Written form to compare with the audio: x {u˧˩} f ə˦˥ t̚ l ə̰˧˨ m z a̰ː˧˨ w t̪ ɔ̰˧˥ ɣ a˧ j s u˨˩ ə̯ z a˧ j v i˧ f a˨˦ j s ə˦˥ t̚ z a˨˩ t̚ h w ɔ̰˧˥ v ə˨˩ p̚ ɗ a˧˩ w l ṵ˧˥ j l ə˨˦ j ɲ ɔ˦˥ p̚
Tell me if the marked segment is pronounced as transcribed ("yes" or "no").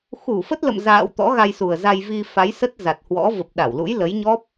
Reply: yes